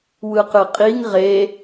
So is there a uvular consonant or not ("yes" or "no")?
yes